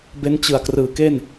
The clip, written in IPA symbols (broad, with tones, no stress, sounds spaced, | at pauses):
b e˦˥ n t͡ɕ ɯ˨˩ a̯ k r ɯː˨˩ k e˥˩ n